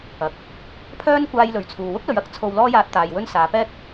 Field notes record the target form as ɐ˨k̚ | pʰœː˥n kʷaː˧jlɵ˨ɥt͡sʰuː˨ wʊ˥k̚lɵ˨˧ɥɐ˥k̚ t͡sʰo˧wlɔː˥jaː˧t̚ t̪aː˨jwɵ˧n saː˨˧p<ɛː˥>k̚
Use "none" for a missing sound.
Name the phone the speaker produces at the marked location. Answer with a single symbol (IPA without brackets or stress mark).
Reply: ɛː˥